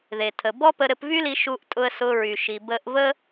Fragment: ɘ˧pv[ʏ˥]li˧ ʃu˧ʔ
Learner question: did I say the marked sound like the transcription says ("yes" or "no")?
no